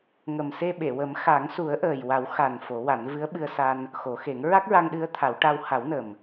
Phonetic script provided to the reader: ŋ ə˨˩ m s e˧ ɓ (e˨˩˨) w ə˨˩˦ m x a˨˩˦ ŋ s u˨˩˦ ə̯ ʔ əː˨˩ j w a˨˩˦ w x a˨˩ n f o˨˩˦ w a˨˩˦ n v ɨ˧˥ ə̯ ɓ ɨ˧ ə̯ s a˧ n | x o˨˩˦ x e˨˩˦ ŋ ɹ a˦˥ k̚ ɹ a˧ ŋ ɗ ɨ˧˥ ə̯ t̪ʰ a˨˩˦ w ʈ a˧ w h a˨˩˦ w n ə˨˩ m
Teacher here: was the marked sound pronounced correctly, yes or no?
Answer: yes